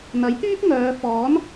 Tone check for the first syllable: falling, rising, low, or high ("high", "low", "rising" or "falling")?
rising